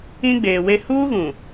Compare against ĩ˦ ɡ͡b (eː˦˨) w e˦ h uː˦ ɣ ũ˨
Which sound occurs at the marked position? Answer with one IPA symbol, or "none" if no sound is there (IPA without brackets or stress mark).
eː˨